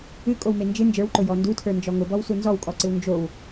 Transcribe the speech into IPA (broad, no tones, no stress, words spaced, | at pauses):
ɨkʼowme nd͡ʒɨ nd͡ʒə˞wǃʊjɔ ndutʰə˞nd͡ʒɔ ŋʊbɔwsu nzɔwkʼɔǀɨw nd͡ʒow